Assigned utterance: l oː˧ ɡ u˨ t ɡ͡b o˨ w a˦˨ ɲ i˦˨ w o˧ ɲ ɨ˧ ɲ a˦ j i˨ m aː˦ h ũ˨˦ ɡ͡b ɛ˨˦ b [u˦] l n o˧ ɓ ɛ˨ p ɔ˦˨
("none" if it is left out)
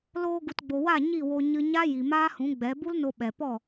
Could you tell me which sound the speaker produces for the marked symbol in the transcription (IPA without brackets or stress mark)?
u˦